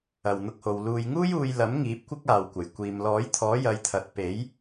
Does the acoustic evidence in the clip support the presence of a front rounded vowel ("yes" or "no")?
no